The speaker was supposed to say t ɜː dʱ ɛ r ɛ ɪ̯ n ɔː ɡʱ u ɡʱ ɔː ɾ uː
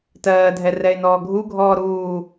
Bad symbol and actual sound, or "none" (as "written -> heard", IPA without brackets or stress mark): none